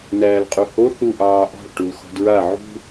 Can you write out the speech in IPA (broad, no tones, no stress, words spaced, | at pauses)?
næːlqʼuho θu ʔɑːʔɔ̤ɭ ʈulxɔ̤dɹa ʕṳ